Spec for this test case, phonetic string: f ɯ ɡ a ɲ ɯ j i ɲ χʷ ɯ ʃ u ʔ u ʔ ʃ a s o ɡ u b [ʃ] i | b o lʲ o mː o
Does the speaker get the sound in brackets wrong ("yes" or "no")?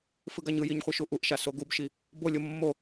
no